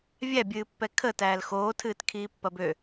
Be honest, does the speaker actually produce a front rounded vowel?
yes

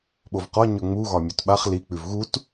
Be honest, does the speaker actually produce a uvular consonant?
yes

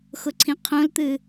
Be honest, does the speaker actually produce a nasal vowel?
yes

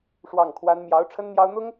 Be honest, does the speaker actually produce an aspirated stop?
yes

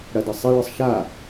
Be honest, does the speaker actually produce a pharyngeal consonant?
no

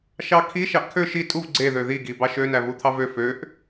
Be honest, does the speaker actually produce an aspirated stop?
yes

